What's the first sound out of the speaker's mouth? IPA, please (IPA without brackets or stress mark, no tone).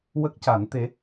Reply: w